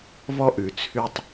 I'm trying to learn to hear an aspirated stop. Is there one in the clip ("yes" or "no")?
yes